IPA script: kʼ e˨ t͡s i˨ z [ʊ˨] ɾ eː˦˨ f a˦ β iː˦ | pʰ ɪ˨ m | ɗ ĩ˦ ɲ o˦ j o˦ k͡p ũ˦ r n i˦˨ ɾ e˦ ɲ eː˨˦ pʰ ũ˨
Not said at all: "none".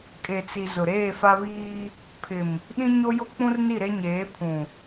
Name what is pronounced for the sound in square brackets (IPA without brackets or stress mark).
ʊ˨